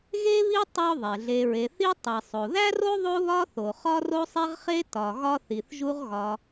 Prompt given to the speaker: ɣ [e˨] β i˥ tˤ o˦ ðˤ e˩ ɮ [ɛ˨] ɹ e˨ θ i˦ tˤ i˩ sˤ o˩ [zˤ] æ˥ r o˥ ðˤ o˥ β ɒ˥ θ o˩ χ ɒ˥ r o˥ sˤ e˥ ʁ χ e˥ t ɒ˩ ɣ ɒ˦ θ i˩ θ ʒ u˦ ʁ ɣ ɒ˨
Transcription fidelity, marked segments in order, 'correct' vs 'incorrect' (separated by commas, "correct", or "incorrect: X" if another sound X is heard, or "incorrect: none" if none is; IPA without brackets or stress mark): incorrect: e˥, incorrect: e˨, incorrect: ð